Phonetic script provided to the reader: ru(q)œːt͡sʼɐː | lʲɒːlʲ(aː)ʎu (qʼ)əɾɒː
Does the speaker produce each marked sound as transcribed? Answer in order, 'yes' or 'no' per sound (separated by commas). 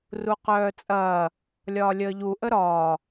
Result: yes, no, no